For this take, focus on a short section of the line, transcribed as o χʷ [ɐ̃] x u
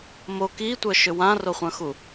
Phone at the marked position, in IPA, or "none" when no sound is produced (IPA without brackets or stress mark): ɐ̃